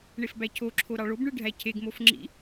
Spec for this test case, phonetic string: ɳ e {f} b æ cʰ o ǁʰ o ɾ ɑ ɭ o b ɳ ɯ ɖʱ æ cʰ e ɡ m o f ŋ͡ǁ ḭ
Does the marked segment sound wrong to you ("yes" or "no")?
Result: no